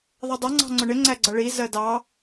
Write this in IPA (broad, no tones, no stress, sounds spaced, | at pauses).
ðˤ ʌ dˤ ʌ ŋ͡ǀ ɑ̤ ŋ͡ǀ ʊ ɳ ɪ ŋ͡ǀ æ ɡ͡ǀ ʌ ɭ i z ɜ d ɑ